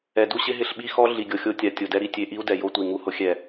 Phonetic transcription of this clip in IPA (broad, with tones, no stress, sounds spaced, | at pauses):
ɛ˨ d u˦ ɕ ɪ˦ ɦ ɪ˦˨ ɬ ɓ i˦ x ɔ˦ ɮ i˨ ɡʲ o˨ xʲ o˦ tʲ a˨ tʲ o˨ d ɛ˦ ɾ i˨ tʲ e˦ ʔ i˦ u̯ d ɛ˨ j o˦ tʷ i˨ ŋ u˦ h ʊ˦ xʲ ɛ˦˨